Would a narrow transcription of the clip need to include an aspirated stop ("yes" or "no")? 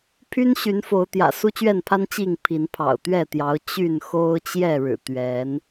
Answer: yes